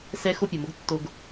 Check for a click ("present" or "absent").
absent